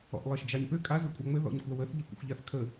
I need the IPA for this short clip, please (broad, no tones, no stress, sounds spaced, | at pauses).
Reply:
ɔ̰ ʔ lˠ ɜ ʃ d͡ʒ ɑ ɲ p ø kʼ a z ɘ kʷʼ ɑ ŋ͡m ɘ ð ɔ̰ ɲ xʷ a w ə θ ʎ ɜ kʷ ə̰ xʷ ʎ a θ kʰ ə